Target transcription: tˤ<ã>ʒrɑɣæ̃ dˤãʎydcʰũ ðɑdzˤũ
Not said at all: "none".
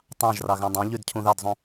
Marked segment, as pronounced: ɑ̃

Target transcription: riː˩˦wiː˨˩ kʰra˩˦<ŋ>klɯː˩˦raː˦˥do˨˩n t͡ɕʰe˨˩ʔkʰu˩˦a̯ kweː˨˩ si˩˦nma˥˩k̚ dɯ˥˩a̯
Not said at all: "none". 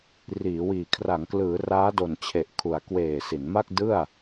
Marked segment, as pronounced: ŋ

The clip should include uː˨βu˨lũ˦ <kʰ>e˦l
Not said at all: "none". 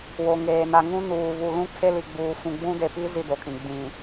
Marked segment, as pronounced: kʰ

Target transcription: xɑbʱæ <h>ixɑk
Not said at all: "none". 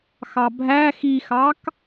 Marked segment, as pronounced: x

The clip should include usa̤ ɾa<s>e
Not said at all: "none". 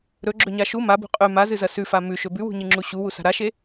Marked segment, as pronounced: ʃ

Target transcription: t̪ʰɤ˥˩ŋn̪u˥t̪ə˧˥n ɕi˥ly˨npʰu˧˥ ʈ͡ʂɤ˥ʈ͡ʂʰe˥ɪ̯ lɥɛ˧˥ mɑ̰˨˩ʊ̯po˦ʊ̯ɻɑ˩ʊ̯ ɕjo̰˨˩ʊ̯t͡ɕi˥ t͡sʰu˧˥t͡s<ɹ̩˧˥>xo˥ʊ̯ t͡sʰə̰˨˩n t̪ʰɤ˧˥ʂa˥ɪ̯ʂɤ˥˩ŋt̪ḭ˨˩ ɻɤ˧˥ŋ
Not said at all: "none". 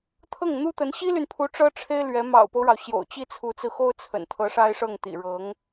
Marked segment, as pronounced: ɹ̩˧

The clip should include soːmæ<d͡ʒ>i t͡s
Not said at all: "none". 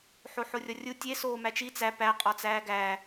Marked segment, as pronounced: t͡ʃ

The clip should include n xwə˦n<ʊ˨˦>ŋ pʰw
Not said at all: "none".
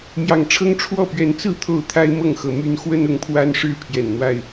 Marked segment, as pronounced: ʊ˨˦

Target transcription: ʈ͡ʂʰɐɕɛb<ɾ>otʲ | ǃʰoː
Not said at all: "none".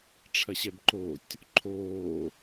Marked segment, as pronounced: ǃ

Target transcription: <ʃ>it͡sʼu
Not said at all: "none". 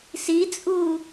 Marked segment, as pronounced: s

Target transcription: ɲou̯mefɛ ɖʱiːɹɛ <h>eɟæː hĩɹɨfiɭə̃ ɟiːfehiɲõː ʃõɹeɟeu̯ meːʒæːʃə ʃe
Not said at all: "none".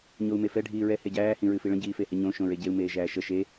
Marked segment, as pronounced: h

